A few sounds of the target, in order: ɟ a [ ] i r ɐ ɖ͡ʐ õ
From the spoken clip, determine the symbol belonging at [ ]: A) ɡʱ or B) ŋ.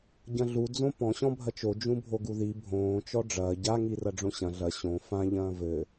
B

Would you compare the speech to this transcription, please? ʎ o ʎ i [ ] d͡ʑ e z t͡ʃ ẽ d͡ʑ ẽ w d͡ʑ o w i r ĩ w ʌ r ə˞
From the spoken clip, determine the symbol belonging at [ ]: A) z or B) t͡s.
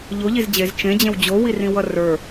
A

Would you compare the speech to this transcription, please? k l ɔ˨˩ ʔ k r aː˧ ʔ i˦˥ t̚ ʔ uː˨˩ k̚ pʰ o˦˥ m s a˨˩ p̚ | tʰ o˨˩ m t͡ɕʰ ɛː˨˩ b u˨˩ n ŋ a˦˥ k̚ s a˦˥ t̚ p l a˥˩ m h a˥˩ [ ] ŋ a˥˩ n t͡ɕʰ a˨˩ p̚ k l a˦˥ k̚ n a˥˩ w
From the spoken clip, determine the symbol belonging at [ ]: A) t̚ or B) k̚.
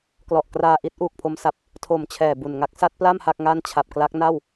B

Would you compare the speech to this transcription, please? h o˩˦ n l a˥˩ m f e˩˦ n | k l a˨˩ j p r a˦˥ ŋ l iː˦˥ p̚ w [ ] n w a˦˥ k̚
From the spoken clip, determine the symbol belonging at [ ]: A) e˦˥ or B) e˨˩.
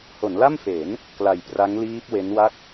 A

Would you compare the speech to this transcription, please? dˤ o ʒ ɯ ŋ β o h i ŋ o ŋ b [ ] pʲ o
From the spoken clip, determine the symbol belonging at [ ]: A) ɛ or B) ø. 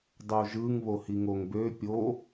B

